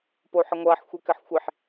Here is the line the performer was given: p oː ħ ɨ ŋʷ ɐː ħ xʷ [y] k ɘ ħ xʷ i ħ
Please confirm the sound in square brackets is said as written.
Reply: no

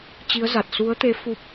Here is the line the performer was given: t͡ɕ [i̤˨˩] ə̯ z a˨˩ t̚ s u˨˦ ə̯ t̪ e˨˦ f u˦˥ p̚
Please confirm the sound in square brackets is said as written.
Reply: no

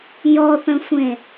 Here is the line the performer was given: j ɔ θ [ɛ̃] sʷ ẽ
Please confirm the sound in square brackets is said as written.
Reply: no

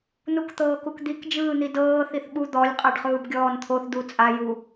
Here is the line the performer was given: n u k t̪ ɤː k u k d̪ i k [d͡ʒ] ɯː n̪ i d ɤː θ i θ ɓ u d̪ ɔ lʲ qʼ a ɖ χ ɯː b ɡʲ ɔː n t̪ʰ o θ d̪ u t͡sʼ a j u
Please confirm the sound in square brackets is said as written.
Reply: yes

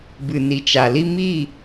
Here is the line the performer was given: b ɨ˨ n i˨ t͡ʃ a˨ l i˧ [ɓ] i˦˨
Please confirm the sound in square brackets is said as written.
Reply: no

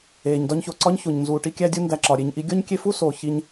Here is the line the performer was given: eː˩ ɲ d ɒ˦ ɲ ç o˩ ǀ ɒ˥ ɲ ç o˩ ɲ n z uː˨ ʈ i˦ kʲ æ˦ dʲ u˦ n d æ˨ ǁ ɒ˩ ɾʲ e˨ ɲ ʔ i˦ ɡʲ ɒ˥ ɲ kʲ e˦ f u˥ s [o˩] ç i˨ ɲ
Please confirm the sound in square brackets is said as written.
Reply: yes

